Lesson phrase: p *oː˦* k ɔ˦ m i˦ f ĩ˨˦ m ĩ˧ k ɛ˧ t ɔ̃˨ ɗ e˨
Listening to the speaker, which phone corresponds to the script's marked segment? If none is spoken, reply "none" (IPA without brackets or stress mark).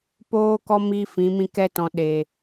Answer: oː˦